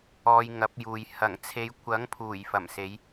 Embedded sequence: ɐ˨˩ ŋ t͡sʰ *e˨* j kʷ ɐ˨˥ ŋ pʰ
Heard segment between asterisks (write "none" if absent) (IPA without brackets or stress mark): e˨˧